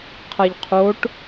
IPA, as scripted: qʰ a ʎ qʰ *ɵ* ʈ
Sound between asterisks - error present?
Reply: yes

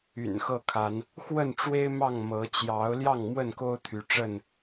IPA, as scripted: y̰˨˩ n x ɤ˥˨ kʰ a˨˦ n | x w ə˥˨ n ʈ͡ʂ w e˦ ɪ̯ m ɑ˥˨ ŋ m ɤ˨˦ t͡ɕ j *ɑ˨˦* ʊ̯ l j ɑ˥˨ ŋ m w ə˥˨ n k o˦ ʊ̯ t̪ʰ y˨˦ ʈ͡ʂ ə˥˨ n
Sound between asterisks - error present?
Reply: no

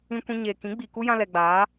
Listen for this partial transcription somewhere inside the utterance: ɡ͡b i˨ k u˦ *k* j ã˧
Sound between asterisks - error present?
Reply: yes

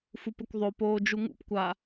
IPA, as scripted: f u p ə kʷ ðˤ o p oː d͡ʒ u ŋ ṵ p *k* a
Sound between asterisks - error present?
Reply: yes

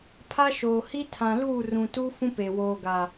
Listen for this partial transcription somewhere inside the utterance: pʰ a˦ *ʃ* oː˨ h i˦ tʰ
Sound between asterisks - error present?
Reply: no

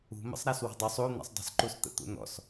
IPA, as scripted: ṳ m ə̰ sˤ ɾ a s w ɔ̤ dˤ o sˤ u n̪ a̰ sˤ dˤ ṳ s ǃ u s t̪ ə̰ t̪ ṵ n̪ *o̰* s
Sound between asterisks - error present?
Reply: yes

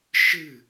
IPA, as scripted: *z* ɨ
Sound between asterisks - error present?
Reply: yes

